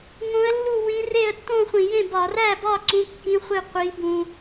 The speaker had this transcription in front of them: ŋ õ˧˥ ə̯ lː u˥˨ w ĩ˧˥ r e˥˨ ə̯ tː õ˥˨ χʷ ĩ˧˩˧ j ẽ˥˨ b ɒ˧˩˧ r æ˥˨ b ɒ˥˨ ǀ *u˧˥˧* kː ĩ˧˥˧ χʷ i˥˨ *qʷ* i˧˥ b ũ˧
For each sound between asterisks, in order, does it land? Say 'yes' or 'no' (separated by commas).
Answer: no, yes